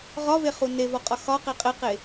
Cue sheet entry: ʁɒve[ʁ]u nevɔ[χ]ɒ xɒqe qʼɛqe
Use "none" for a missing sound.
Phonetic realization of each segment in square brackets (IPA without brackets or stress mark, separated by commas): χ, qʼ